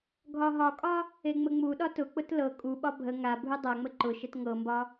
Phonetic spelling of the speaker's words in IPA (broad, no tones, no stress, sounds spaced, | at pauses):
ɡʱ ɒ ɦ ɒ kʼ ɒ | e ŋ͡m ə ŋ͡m u ɗ ɒ t ʊ k͡p ʊ t l ɤ kʼ u ɓ ɒ bʱ ə ŋ a bʱ u dˤ a ŋ͡m ə ǃ ʊ ʃ ə t ŋ ɤ m b ɒ